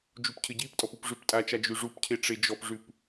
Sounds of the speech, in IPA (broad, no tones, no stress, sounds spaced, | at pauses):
d͡ʒ u p cʰ ɘ ɟ i p tʼ ɔ p u p ʐ ʉ p tʼ a t͡ʃ a d͡ʒ ʉ ʐ u p cʰ e ʈ͡ʂ e d͡ʒ ɔ p ʐ ʉ p